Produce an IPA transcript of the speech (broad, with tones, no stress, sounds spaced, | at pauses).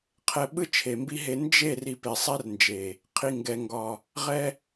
qʰ ɛ˧ ɓ ɯ˦ t͡ʃʰ e˨ m b i˦ ɦ e˧ n d͡ʒ e˦˨ r i˧ p e˨ sˤ ɛ˦ r n d͡ʒ e˨ | qʰ i˨ ŋ ɡ ɛ˨ ŋ ɡ ɒ˨ | ʁ ɛ˧